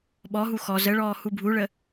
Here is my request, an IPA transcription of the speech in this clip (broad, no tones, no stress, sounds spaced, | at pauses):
ɓ ɔ ɦ u x ɔ z ə ɭ ɔː h u bʱ u ɭ ə